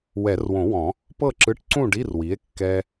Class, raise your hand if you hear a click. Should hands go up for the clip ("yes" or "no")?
yes